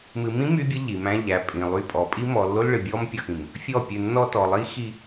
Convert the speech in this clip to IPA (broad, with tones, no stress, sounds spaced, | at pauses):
m ɨ˨ m ĩ˦ m y˦ bʲ ə˦ ʎ i˨ m æ̃˦ ʎ æ˨˦ pʼ ĩ˨ lˠ y˦˨ pʼ ɔ˨ pʼ i˦ m ɔ˨ lː o˦ l ɭ ɨ˨ bʲ ɔ˦ m pʲ ɔ˨ x ĩ˨ m | fʲ ɔ˦˨ pʲ ɨ˨ nː ɔ˦ t ɔ˨ lˠ i˦ x i˦